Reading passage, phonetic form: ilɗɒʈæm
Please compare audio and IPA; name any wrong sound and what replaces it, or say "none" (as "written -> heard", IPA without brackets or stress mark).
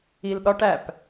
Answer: m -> p